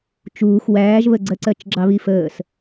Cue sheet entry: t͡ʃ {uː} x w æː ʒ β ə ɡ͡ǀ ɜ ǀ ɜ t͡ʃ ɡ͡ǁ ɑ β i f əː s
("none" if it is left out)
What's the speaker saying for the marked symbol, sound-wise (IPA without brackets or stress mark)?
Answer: uː